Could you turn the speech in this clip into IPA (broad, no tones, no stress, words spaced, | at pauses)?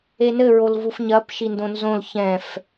enɘ ɹolvufɲɐp ʃindõnzõl çɛ̃f